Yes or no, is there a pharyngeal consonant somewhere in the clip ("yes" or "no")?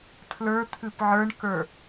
yes